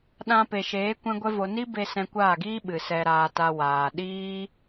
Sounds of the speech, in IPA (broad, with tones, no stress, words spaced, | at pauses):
ɗã˧pe˨ʃeː˨˦ kʷɛ̃˦ɡʷɛ˦vo˧ ni˦be˧ sɛ̃˧kʷaː˦˨ɡiː˦ ɓɨ˨sɛ˧ɾaː˧ta˧ waː˨ ɗiː˦